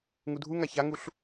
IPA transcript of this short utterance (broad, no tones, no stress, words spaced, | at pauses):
ŋudʱuŋa çaŋuɬ